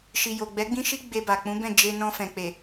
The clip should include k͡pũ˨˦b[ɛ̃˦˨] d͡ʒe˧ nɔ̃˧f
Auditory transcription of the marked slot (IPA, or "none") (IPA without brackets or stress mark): ɛ̃˦˨